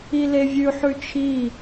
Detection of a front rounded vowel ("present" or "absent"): absent